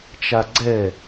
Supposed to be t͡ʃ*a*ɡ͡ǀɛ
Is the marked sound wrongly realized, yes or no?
no